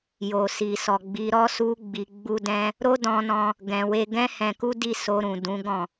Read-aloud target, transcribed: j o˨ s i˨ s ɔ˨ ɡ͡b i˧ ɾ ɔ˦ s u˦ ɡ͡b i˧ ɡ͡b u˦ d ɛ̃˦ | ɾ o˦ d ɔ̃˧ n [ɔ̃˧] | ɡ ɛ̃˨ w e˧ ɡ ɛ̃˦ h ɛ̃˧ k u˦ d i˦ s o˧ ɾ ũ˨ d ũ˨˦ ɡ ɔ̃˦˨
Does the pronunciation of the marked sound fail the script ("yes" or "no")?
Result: no